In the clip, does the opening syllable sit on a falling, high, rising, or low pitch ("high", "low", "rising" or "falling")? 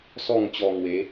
falling